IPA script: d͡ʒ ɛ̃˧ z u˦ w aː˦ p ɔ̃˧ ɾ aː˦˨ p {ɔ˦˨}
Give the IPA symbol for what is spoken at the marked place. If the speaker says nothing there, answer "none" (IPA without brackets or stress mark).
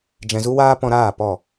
ɔ˦˨